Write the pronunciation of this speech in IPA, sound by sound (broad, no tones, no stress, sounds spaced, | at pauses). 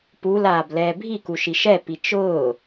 p u l aː b l ɛː bʱ i k u ʃ i ʃ ɛ p i t͡ʃ ʊː